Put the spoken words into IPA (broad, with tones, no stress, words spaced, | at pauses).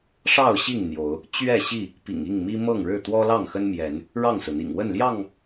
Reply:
ʂɑ˥˨ʊ̯ɕi˥˨ŋ n̪jo˨˦ʊ̯ | t͡ɕɥɛ˥˨ɕi˥˨ | pḭ˨˩ŋi˥˨ŋmi˦ mɤ˥˨ŋɻɻ̩˥˨ t̪wɔ˦lɑ˥˨ŋxə˦nmjɛ˨˦n | ɻɑ˥˨ŋsɹ̩˩n̪ḭ˨˩ŋ wə˥˨nljɑ˥˨ŋ